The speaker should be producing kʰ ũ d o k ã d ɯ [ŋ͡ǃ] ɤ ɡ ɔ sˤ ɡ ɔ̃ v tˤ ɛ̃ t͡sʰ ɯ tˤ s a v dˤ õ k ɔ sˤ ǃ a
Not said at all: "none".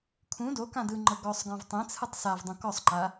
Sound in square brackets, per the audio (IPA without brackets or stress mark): ŋ͡ǃ